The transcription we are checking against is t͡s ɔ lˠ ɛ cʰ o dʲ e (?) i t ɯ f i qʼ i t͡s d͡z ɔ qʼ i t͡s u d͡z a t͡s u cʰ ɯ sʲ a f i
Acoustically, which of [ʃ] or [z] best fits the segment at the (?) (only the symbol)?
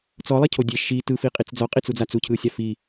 ʃ